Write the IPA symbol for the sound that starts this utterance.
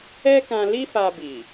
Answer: ɛ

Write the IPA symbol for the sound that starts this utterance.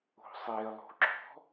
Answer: o̤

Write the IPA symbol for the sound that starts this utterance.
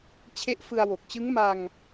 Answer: t͡ɕʰ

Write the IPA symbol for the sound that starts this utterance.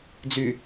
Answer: d͡z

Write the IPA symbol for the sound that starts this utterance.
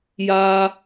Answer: j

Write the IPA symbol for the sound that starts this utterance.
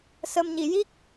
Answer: s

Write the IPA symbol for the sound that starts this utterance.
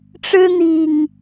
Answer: ʈ͡ʂ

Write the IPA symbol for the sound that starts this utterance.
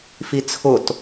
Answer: f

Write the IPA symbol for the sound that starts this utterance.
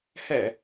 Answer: h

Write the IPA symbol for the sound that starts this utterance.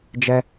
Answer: d͡ʒ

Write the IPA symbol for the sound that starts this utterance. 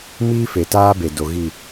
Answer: m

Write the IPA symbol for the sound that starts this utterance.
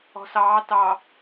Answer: ɔ̤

